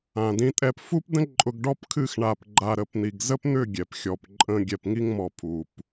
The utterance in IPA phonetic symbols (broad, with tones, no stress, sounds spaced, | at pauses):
ã˨ d ĩ˧ tʼ ɛ˧ p f u˦ p d ə̃˦ ǃʼ ʊ˧ ɡ ɖ ɔ˦ p kʰ ɨ˦˨ x ɳ a˨ p ɡ͡ǃ a˨ ɾ ə˨ p n̪ i˨ ɡ z ə˦ p n̪ ʏ˦˨ ɡʲ ɛ˨ p xʲ ɔ˨ p ǃʼ ə̃˧ ɡʲ ɛ˨ p ŋ i˧ ŋ m ɔ˨ pʰ u˨ p